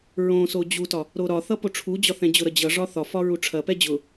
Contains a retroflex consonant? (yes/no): yes